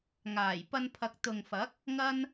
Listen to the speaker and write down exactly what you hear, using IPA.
ŋ aː˨˩ j p ɐ˧ n pʰ ɐ˨ k̚ t̪ ʊ˨ ŋ f ɐ˨˥ k̚ | ŋ ɐ˥ n

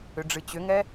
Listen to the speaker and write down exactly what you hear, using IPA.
ʏ ɖ͡ʐ ɨ t͡ɕ ʏ ŋ ɛ

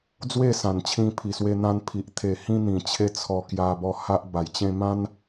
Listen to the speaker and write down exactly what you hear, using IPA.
d͡z w e˥˧ s ã˨˩ n t͡ɕʰ ĩ˧ pʰ i˨˩ s w e˧ n̪ ã˧ n pʰ i˨ ʔ t̪ʰ e˨˩ h ĩ˧ n̪ ĩ˨˩ t͡ɕʰ e˧ t͡sʰ ɔ˧ k j a˧ b ɔ˧ h a˦ ʔ b a˨˩ j t͡ɕ ẽ˧ m ã˦ n

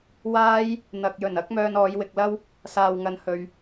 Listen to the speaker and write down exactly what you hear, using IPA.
w aː˥ j | n̪ ɐ˨ k̚ j ɵ˨˩ n ɐ˥ k̚ m œː˧ n ɔː˨˧ j w ɪ˨ k̚ l ɐ˥ w | s aː˨ w ŋ ɐ˨˧ n h ɵ˨ ɥ

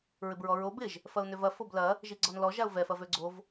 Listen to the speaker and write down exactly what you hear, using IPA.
ɹ ɪ b ɹ ɔ ɹ o b ɪ ʒ | f ɐ ʊ̯ n ø v ɐ f o b l ɐ | ʒ i ɡ͡ǀ ɔ n l ɔ ʒ a ʊ̯ v ɛ f ɐ v ø ɡ͡ǀ o v

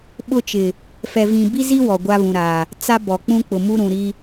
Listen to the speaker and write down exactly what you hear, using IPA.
ɓ ʊ˦ t͡ʃ ɪ˨ | f ɛ˨ v ĩ˨ b i˦ z i˦ w ɔ˨ ɡʷ a˦ β ũ˨ ɾ a˨ | t͡s a˦ b ɔ˨ k͡p ũ˦ k͡p ʊ˨ m u˦ ɾ ũ˨ ɾ i˦

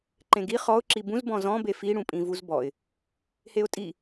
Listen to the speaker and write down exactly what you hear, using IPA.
ǃ ẽ ɡ i χ ɔ ʊ̯ ǁ i b ũ z b ɔ̃ z ɔ̃ b e f i ɽ ũ pʼ ĩ v u z b ɔ ɪ̯ | h e ʊ̯ tʼ i

